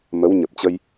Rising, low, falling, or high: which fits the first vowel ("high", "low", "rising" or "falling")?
rising